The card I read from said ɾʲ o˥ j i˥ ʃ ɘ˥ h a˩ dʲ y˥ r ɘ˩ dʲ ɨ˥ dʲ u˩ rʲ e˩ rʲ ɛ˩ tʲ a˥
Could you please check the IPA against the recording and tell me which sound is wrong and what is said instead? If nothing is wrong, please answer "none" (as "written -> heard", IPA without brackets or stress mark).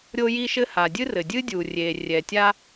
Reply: y˥ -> ɨ˥